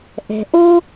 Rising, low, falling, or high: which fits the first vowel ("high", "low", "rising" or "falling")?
low